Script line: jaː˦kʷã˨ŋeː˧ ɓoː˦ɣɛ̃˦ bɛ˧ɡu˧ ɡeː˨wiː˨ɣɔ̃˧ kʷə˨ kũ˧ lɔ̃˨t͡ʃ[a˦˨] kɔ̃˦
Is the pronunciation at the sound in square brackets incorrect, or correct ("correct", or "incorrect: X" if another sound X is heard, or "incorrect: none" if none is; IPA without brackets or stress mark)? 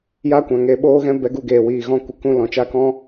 correct